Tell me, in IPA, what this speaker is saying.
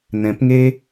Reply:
n ɛ̃˨˦ p ŋ e˦

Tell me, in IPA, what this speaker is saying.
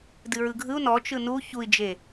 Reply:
d ɨ ɹ ɯ ɡʱ ɯ u̯ n ɔ t͡ʃ ɯ n u ç u i̯ d͡ʒ e

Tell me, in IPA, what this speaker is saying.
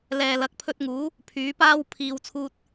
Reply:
l ɛː˨ l ɐ˨˥ k̚ pʰ ɵ˧ t̚ ŋ uː˨˥ | pʰ yː˨˥ p aː˥ w pʰ iː˨˧ w t͡sʰ uː˧ t̚

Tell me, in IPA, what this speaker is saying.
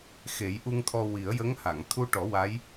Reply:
x e˨˩˦ j ʔ u˧ ŋ t̪ʰ ɔ˧ w i˨˩˦ ə̯ j ə˧˥ ŋ h a˨˩˨ ŋ t̪ʰ u˧ ʈ ɔ˨˩˦ w a˧˥ j

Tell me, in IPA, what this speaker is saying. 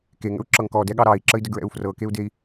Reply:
k e ŋ ə̰ u̯ ǁ ɤ ŋ k ɔ d ɛ ɠ ɑ ɾ ɑ i̯ ǁ ə i̯ d ə ɡ ɹ ɛ̰ u̯ f r ɤ k e u̯ d e i̯

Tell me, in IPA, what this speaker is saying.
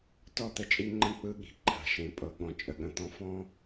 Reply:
t ɔ˦˨ t̪ ə˦ t͡ʃʼ i˦ ŋ͡ǃ ə̃˦ k͡p ɯ˦ ɠ i̤˨ ǃʰ a̤˨ ʃ ẽ˨ pʼ ɤ˨ ɠ ɔ̃˨ t͡ʃʼ ə˨ ɠ ə̃˨ t̪ ɔ̃˦ f ɔ̃˦

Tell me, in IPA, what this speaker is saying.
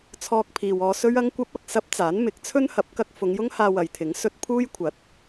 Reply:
t͡sʰ ɔː˧ k̚ pʰ iː˨ w ɔː˧ s ɵ˥ ɥ ɐ˥ ŋ kʷ ɐ˥ p̚ ɐ˨ k̚ s ɐ˥ p̚ t͡s aː˨˥ n m ɪ˨˥ k̚ t͡sʰ ɵ˥ n h ɐ˨˥ p̚ k ɐ˧ k̚ f ʊ˨˧ ŋ j ʊ˥ ŋ h aː˧ w ɐ˨ j t̪ʰ ɪ˨˥ ŋ s ɵ˧ t̚ pʰ uː˥ j kʷʰ ɐ˨˥ t̚

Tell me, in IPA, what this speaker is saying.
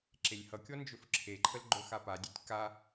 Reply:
ǁ e lʲ h ʌ kʲ ɔ n d͡ʒ ɵ f ǁʰ e ǃʰ ə l ɡ͡ǃ ɵ x a p a dʲ e tʲ k a

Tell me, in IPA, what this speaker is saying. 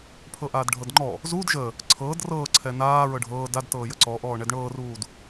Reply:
pʰ ɤ ʔ aː d ɖʱ ɤ d ŋ͡ǃ ɔ | z uː d ʒ ə | ǀʰ ɤː d r ɤː ǀʰ ɛ n aː ɹ ɤ ɖʱ ɤː d a d t ɤː j ə ǀ ɔ ʔ ɔː ɳ ɛ d ɳ ɤː r uː d

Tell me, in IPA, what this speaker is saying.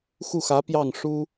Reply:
x u˥˩ x ä˧˥ p j ɑ˥˩ ŋ ʂ u˥

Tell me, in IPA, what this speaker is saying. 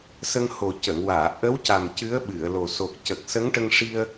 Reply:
s ə˧ ŋ h o˨˩ c ə˨˩˨ ŋ w aː˨˩˨ ʔ ə˧˥ w c a˨˩ m c ɨ˧˥ ə̯ ɓ ɨ˨˩˨ ə̯ l o˨˩ s o˨˩ k̚ c ə˨˩ k̚ s ə˧˥ ŋ ʈ ə˧ ŋ ʂ i˧ ə̯

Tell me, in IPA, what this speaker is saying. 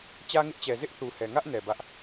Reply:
t͡ɕ ä˦ ŋ ɪ˦ ʔ t͡ɕ ɛ˨ z ɪ˦ ʔ θ u˨ h ɛ˨ ŋ ä˦ ʔ n ɛ˨ b ä˦ ʔ

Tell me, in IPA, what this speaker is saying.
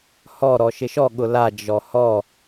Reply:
h ɔ ɾ ɔ ʃ ɪ ʃ ɔ ɠ ʊ l a d͡ʒ ɔ h ɔ

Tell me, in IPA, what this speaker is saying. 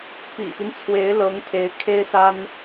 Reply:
p ḭ˨˩ p i˦ n t͡sʰ w e˧˥ ɪ̯ l ɤ˧˥ ŋ pʰ e˧˥ ɪ̯ kʰ e˥ ɪ̯ s a˥ n

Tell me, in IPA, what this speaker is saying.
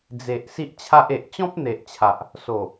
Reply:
d͡z e˨ ʔ s i˦ ʔ t͡ɕʰ a˦ ʔ e˨ ʔ t͡ɕ ɔ̃˦ p̚ n̪ e˨ ʔ t͡ɕʰ a˨ ʔ | s o˨˩

